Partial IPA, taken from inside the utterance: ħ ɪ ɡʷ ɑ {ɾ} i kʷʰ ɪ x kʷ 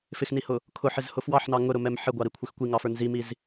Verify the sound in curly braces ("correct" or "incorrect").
correct